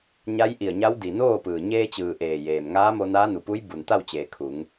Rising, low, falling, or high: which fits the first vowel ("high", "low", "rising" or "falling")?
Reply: rising